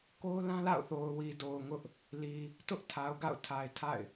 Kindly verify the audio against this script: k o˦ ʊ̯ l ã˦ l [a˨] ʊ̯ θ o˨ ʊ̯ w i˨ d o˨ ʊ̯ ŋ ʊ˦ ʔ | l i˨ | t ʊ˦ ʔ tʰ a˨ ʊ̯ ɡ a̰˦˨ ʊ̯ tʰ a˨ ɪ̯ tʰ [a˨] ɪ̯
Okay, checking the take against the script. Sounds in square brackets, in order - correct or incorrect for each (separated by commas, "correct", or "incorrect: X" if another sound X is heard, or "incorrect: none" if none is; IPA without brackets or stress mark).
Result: incorrect: a̰˦˨, incorrect: a̰˦˨